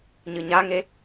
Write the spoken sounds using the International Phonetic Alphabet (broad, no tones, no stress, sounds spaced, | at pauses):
ɲ ɨ ɲ a ŋ e